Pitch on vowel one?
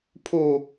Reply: low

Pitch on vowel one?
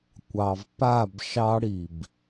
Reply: low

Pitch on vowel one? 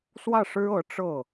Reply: falling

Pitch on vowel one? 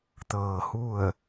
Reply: low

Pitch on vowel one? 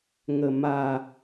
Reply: low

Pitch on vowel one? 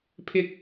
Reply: high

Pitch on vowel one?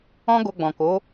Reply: high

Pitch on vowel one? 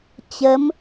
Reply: rising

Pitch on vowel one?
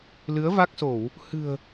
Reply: rising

